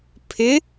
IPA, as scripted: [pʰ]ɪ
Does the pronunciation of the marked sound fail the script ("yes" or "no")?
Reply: no